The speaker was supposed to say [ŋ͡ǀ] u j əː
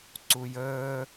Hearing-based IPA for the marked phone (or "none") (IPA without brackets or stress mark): ǀ